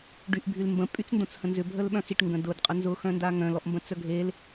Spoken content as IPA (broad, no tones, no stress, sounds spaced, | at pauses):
ɖ y ʔ bʱ y l m b ə̃ pʼ y t͡s n d õ t͡s h ə̃ n z ʏ bʱ ə l ɓ œ̃ x i ʈ ŋ ɡ ə̃ d ʊ d qʼ ə n z ʊ x œ̃ n d a ŋ œ̃ l ɔ ʔ m b ə̃ t͡s œ ɡʱ e l